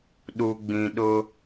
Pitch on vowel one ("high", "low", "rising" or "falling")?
low